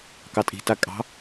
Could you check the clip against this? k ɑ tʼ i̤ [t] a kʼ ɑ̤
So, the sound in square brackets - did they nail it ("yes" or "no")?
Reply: yes